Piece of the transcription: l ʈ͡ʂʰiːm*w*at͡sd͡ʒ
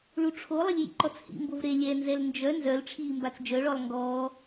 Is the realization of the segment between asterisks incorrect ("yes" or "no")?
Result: yes